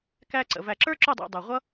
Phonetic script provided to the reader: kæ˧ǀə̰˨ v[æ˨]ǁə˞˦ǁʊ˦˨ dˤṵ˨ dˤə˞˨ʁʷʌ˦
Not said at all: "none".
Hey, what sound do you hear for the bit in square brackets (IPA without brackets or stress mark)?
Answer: æ˨